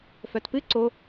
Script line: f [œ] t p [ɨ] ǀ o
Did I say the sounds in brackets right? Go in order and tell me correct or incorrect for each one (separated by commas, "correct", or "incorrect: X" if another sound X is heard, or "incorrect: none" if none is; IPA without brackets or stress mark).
correct, correct